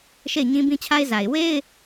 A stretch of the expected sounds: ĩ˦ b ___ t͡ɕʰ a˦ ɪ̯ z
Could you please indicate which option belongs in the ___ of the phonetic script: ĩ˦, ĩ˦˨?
ĩ˦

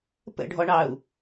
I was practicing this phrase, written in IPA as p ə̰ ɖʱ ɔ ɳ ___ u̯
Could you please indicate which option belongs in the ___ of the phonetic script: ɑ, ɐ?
ɑ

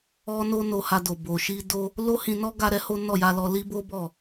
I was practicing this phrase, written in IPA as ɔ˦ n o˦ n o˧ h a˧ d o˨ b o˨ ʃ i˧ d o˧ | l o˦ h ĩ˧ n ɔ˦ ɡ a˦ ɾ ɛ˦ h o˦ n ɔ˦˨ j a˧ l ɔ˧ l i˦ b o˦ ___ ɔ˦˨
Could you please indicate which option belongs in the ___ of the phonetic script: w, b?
b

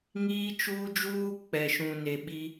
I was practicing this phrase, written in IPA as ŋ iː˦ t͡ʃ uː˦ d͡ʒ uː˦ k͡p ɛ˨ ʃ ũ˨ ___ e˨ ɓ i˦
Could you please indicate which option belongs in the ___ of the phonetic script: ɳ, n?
n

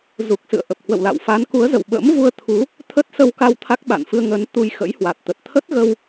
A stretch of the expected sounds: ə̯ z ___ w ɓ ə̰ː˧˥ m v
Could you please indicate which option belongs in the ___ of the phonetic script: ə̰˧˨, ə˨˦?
ə̰˧˨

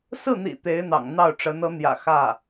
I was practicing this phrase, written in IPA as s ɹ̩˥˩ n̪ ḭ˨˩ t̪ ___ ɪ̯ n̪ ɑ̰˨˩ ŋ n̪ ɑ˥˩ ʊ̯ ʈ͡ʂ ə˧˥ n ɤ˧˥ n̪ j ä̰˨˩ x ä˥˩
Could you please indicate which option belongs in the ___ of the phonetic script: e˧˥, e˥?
e˧˥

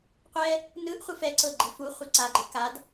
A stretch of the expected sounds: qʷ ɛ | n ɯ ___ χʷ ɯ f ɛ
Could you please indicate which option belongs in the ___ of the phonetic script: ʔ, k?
ʔ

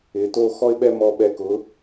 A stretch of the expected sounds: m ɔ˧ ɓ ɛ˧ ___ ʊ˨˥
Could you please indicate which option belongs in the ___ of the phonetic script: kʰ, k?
k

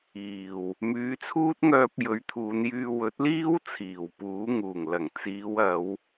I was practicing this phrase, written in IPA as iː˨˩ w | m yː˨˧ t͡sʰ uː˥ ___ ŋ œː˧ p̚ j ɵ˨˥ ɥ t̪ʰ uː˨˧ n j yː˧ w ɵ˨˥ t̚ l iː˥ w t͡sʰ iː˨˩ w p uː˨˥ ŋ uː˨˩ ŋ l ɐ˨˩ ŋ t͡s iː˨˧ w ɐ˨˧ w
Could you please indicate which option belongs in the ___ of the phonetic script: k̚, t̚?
t̚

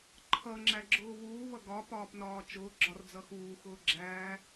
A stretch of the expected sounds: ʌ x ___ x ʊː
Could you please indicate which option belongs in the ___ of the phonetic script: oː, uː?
uː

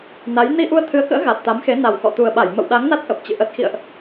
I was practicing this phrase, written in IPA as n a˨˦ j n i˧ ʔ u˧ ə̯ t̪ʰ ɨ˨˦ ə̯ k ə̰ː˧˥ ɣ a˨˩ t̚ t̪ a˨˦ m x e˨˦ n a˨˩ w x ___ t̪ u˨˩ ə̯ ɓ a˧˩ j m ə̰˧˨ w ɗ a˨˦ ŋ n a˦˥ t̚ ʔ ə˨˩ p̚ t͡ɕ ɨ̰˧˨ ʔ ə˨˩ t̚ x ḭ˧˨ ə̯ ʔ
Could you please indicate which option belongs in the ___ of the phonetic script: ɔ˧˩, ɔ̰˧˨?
ɔ̰˧˨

